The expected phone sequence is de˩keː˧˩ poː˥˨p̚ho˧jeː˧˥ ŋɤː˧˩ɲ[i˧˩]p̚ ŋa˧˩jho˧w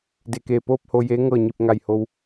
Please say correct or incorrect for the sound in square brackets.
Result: correct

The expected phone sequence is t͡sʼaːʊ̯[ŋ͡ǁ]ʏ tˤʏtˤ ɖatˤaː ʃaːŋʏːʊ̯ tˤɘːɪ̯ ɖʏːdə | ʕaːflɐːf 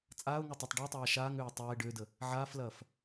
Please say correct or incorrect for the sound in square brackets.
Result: incorrect: ŋ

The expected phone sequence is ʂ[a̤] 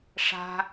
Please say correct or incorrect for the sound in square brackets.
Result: correct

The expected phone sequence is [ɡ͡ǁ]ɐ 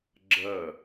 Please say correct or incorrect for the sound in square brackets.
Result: correct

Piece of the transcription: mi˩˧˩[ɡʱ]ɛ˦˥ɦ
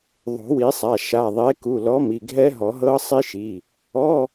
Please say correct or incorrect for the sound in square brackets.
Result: correct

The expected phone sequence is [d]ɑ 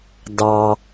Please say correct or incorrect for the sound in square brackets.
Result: correct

